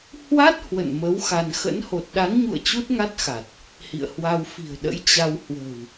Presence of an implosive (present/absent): present